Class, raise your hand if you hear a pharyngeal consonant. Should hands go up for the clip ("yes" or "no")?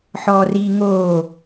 yes